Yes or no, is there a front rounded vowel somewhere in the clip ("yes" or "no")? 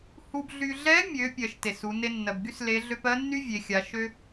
yes